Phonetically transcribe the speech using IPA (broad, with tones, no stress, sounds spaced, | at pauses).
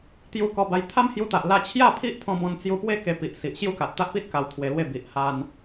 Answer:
t̪ j u˧ k ɔ˧ b a˧ j t̪ʰ a˦ m h j u˧ t̪ a˨ ʔ l a˧ t͡ɕʰ j a˥˧ pʰ i˦ ʔ pʰ ɔ̃˧ b ɔ̃˧ n t͡s j u˧ p w e˦ k e˧ p i˨ ʔ s i˨ ʔ ɕ j u˦ k a˨ t̚ t̪ a˦ ʔ p i˦ t̚ k a˧ w t̪ʰ w e˧ l w e˥˧ b i˨ ʔ h a˧ n